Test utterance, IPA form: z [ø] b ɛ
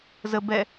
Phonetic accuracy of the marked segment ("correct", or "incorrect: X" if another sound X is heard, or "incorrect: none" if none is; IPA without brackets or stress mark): incorrect: ə